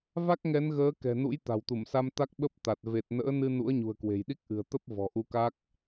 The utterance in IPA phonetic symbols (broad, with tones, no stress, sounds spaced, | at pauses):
v a˦˥ k̚ ŋ ɛ˨˦ n ɣ əː˨˦ k ɛ̤˨˩ n ṵ˧˥ j t̪ a̤˨˩ w t̪ u˧˩ m s a˧ m t̪ a˦˥ k̚ ɓ ə˦˥ p̚ t̪ a˨˩ t̚ v e˨˩ t̚ n ə̰ː˧˥ n ɨ˧ n ṵ˧˥ ə̯ ɲ ṳ˨˩ ə̯ k w e̤˨˩ j ɗ i˦˥ k̚ ʔ ɨ̤˨˩ ə̯ t̪ ə˦˥ p̚ v ɔ̤˨˩ ʔ u˧ k a˦˥ k̚